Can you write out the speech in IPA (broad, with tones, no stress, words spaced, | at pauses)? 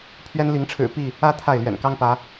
pʰɥɛ˦n li˨˦ŋʈ͡ʂʰɻ̩˨˩ pi˥˨ | ä˦ t̪ʰa˥˨ɪ̯lɥɛ̰˨˩nkɑ˦ŋpä˨˦